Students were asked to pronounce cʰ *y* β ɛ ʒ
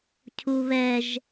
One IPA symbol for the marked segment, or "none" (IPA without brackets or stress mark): u